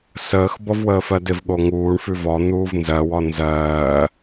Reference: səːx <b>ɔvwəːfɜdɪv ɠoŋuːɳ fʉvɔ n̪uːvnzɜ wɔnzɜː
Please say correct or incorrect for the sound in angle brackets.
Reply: correct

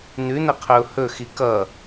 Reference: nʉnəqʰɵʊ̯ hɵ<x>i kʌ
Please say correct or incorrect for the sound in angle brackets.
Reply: correct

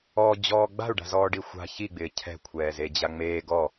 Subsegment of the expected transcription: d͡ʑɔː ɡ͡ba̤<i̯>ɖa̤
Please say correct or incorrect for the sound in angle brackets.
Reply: incorrect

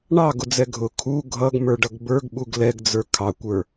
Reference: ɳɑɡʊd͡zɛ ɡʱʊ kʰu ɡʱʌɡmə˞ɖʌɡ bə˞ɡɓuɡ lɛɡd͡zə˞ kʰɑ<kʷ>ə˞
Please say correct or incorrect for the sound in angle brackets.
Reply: correct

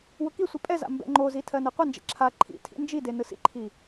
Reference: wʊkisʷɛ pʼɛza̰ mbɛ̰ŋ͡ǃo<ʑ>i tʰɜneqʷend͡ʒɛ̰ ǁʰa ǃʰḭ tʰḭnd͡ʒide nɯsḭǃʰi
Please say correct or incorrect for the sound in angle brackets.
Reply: incorrect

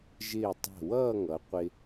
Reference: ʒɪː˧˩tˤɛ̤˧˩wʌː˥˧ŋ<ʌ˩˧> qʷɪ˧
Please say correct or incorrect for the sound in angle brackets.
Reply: correct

